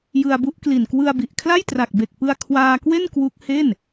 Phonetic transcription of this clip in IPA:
j ɯ˧ a̯ b u˦˥ ʔ k l i˨˩ n k w ɯ˧ a̯ b i˨˩ ʔ kʰ l a˥˩ j t r a˨˩ k̚ b e˨˩ k̚ p ɯ˧ a̯ kʰ w aː˧ k w e˥˩ n k w u˦˥ k̚ h e˥˩ n

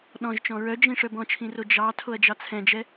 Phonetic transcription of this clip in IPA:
ɗ ɔ̃ ʒ t͡ʃ ɔ̃ ɹ œ d͡ʒ ĩ ʂ œ b ɔ̃ t͡ʃʰ ĩ r o d͡ʒ ɑ tʰ o ɐ̯ d͡ʒ ɑ t͡sʰ ɛ̃ d͡ʒ ɛ

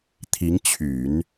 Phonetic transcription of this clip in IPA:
t̪ʰ i˧˥ ŋ t͡ɕʰ y˨˩˦ n

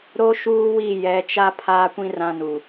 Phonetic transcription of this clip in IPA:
ɾ o˦ ʃ uː˦ w i˦˨ j ɛ˨˦ t͡ʃ a˦ pʰ aː˦ kʷ ĩ˦ r ã˦ n u˨

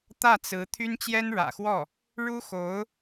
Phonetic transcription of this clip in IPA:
t̪ ä˥˩ t͡s ɹ̩˧˥ t̪ʰ y˥ n t͡ɕ j ɛ˥ n ɻ ä̰˨˩ x w ɔ˥˩ | ɻ u˥ x o˧˥ ʊ̯

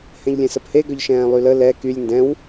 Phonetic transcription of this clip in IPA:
h ɛ̃ ʎ lʲ ɛ̃ s ə p h e ɡ œ ʎ ʃ ɛ̃ː lˠ y l ə l ɛ k y lʲ n d ɛ̃ w

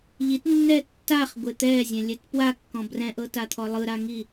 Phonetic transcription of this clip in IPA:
ʎ i t nː ɛ tː a χ ɡʷ e t̪ ɛ zʲ ɛ̃ lʲ ɛ t p w a kː ɔ̃ b r ɛ̃ ʔ ɤ t a t̪ʰ ɔ lˠ ɯ ɾ a ŋ i

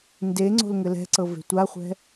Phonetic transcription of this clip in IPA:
n d e ŋ͡ǀ o̤ l ŋ ɘ l ɛ̤ ǀ ɤ v e̤ tʷ a χʷ ɛ̤

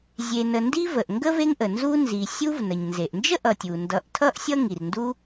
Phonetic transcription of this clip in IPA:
zʲ e˨ n ə˨ n d i˦ v ə˩ ʔ ŋ ɡ ə˥ v e˦ ŋ ʔ ə˩ n z u˦ n z i˨ sʲ u˦ v n ə˩ ɲ n z e˩ ʔ n d͡ʒ ə˥ ʔ ʌ˨ tʲ u˩ n d ʌ˨ ʔ tʰ ʌ˥ ʔ sʲ ʌ˥ ŋ i˨ r n d u˦

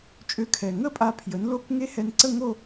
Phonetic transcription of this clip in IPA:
t͡ʃʼ ø˧ kʰ ɛ˨˩ ŋ ə˥˧ pʼ a˧ pʰ j ə˩˥ n l o˦˥ k ŋ e˦˥ h ɛ˧ n ǀ ə˥˧ ŋ o˥˧

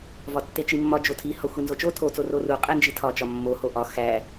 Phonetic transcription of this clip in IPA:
v ɒ tː e t͡ʃ i mː ɒ d͡ʒ o tʰ i h ɒ xʷ i n z o t͡ʃ o tʰ o t͡s o r o r u qʼ e n d͡ʒ i tʰ ɒ t͡ʃ ɒ mː o h o ʔ ɒ x æ

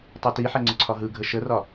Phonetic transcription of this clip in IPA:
tˤ e t i ħ ɛ ŋ͡ǀ ə ǀʰ ɒ ɦ ɯ ɡʱ ə ʃ ə r ɒ

